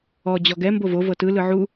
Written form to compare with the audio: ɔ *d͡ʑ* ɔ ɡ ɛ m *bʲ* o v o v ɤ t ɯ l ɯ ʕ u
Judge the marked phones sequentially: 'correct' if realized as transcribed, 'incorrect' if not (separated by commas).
correct, incorrect